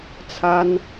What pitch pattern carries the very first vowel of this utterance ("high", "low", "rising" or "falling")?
high